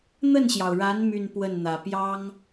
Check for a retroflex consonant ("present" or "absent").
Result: present